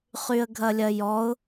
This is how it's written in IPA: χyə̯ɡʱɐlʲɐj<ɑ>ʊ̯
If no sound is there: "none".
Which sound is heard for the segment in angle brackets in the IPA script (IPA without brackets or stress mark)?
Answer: ɔ